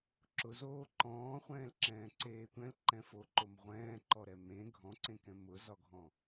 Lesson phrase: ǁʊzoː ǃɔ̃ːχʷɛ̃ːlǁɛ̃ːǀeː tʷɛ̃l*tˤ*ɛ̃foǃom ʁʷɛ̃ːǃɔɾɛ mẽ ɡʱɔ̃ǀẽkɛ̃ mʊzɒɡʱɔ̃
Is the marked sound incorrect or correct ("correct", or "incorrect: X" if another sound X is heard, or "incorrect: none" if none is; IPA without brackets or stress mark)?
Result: incorrect: ǃ